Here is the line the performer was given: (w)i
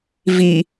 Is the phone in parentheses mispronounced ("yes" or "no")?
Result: yes